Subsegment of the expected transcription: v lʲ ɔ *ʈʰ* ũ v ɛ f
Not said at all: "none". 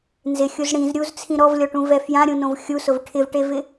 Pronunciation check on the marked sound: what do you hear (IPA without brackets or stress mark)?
ʈ